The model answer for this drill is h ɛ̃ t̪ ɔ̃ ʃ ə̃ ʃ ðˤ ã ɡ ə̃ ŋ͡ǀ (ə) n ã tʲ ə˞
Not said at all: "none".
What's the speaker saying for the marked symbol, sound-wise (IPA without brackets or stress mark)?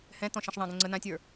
ə